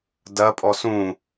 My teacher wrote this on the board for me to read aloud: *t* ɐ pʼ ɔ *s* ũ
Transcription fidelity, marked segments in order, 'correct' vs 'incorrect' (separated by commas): incorrect, correct